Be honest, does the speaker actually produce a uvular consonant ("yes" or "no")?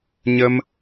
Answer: no